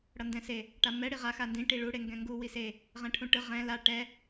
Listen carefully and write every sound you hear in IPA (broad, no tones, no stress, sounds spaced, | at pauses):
ɽ ʌ n d ɛ̃ s e | ʈ a m ɛ ɽ i ʁ a x a n d ĩ ʈ i ɭ u ɽ e ŋ ɡ ɛ̃ ŋ ɡ u w i s e | ʁ ɛ̃ ʈʰ ũ ʈ ɯ ʁ ɛ̃ l a ʈ ɛ